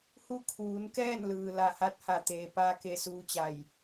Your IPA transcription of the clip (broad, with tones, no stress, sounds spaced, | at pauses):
h u˧ kʰ uː˩˧ n k ɛː˥˨ n l ɯː˩ l a˧˩ h a˥˨ t̚ h a˧˩ t̪ eː˩ p aː˧ k e˧˩ s uː˧ t͡ɕ a˧˩ j